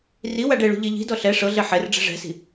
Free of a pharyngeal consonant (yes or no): no